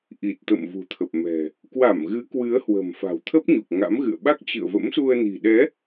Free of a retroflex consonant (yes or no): yes